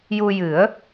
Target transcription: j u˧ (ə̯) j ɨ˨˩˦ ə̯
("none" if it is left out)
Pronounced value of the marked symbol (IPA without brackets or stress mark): none